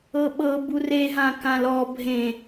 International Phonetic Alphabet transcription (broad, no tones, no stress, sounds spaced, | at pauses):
ɤ ɓ ɤ b u r e ɦ ã k ã l ɔ bʱ ẽ